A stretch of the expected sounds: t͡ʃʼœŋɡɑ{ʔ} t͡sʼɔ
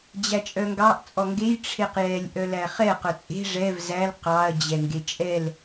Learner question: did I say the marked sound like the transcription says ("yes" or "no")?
yes